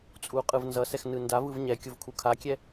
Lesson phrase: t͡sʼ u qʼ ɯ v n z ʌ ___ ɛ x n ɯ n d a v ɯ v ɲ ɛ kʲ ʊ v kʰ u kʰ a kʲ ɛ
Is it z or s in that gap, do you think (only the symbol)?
s